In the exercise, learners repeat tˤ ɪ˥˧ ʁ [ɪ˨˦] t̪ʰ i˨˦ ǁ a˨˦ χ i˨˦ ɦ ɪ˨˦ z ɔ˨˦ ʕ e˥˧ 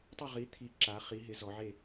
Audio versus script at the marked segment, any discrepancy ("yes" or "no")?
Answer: yes